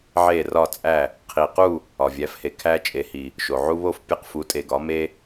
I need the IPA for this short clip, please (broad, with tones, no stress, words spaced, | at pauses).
ʕe˧˩rɒ˧˩t͡sʼæ˧˩ | qʰi˩qu˥˨ | ɒ˩vʲæ˩˧fhe˩ kʰæ˦t͡ʃʼe˩˧ hi˩ | ʃo˩ʕu˦βo˥˨fpʲe˦q fu˩˧tʼe˩ɡɒ˩˧ me˦